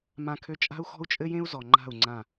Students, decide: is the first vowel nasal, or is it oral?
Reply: nasal